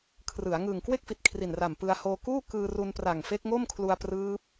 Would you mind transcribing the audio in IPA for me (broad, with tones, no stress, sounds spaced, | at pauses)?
kʰ r ɯ˩˦ a̯ ŋ ɯː˨˩ ŋ k w e˥˩ k̚ f i˨˩ t̚ kʰ r i˨˩ n r a˨˩ m p ɯ˧ a̯ h oː˧ k uː˥˩ k ɯː˧ r u˧ n p r a˨˩ ŋ f e˦˥ k̚ ŋ o˥˩ m kʰ l u˧ a̯ p r ɯː˦˥ p̚